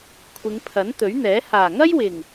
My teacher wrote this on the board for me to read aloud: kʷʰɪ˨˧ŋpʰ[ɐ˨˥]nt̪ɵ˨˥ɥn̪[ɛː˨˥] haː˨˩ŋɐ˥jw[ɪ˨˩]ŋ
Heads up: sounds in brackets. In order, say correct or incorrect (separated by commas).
correct, correct, correct